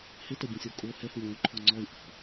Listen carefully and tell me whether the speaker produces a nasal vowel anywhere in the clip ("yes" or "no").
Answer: yes